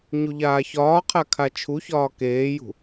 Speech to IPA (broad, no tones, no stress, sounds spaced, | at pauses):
ɲ u ʎ aː ç ɒː qʰ a kʰ a t͡ʃʰ u ç ɒː k eː j ṳ